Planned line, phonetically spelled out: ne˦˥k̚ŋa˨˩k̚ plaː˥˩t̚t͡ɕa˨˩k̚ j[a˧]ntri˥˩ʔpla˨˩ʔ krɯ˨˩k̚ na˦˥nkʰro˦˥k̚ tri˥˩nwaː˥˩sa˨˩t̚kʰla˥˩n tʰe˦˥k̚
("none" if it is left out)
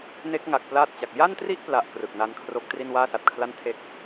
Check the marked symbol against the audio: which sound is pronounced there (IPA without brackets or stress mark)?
a˥˩